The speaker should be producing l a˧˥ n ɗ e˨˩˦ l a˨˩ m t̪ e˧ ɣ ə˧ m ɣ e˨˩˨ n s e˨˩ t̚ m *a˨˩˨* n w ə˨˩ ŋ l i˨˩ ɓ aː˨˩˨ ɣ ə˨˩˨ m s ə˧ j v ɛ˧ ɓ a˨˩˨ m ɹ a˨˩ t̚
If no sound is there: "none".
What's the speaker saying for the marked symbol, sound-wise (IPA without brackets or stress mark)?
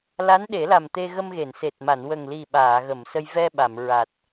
a˨˩˨